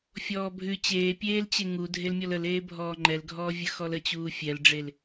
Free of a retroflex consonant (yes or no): no